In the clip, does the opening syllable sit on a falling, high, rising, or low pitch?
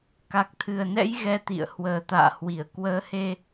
low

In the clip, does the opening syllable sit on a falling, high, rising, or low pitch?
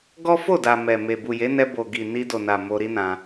high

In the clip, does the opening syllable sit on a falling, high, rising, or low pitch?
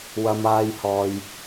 low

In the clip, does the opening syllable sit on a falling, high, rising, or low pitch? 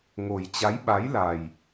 low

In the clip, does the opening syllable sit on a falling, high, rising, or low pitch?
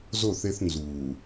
falling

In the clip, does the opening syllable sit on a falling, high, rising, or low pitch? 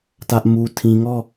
high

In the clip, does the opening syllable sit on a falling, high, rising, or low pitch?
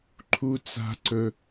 high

